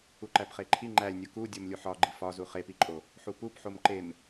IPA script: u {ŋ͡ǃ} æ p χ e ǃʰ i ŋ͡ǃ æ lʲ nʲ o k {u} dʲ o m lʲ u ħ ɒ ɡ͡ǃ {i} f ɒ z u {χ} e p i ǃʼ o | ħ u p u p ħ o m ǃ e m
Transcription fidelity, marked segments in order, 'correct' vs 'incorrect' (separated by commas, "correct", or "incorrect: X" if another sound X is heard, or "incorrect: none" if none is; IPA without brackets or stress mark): incorrect: ǃ, correct, correct, correct